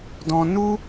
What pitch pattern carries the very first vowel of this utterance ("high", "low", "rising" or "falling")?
high